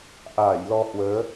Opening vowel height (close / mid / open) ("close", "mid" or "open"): open